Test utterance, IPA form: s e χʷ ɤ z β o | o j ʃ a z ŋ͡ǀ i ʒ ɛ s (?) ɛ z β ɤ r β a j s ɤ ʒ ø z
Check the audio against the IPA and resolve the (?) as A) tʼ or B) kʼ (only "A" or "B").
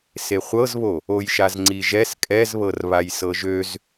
B